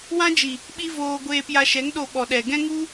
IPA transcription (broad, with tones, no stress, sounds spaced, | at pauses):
w ã˦ d͡ʒ i˨ | ɓ i˦ v oː˧ ɡʷ eː˧ p j a˧ ʃ ɛ˨˦ ŋ ɗ o˧ ɓ ɔ˨ ɗ ɛ˨ ɡ ɛ̃˦ ŋ u˦